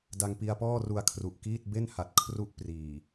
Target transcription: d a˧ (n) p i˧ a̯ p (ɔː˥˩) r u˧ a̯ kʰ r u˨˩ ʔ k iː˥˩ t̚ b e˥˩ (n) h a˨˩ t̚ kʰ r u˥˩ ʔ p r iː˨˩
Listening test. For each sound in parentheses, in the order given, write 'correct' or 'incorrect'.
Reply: incorrect, correct, correct

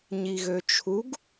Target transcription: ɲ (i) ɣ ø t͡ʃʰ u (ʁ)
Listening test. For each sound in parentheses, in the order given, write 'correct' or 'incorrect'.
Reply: correct, incorrect

